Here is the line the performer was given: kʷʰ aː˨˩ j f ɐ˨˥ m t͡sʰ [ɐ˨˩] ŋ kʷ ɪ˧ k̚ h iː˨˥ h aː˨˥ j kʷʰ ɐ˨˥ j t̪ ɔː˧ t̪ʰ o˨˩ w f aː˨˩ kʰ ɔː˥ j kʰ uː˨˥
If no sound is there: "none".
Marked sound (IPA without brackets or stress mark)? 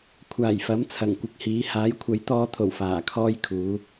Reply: ɐ˨˩